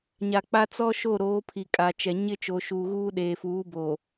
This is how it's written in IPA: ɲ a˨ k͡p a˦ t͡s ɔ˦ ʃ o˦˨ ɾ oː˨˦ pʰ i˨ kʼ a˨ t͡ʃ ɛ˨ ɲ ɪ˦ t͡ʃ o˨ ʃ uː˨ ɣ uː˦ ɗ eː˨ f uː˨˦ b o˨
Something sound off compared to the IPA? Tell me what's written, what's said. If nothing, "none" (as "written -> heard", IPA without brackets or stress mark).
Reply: none